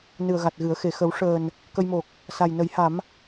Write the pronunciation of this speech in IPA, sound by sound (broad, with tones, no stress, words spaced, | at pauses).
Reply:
nɨ˨˩ə̯ɣa˨˩t̚ɣɨ˨˩˦ə̯xe˨˩ xə˨˩˦w ʂəː˨˩n | kə˧jmo˨˩k̚ | sa˨˩jnə˨˩˦jha˨˩˦m